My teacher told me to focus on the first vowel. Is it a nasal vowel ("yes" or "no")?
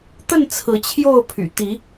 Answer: no